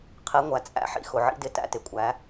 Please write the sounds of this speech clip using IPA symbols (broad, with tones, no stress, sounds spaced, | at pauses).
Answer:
qʰ i˨˦ ŋʷ æ˨ t͡sʼ æ̰˦ ħ ḭ˦ x ʊ˨ ʕ ḭ˦ d ɪ˦ t æ̰˦ t ɪ˨ kʷʼ æ˨˦